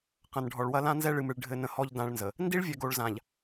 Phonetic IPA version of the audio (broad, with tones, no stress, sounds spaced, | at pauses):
q ɐ̃˨ n ɖʱ ɔ˨ ɭ w ɐ˦ l ã˦ n z ɛ˦ ɭ ɨ˨ m ɨ˨ ɭ ɖʱ ɘ˦ n ə̃˦ h ɔ˦ ʎ d ã˦ ɭ n z ə˨ | n d i˦ ɭ vʲ ɛ˨ ɡ o˨ ɭ z ã˨ ʎ